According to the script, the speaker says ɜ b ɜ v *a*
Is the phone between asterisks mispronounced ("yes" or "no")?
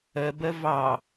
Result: yes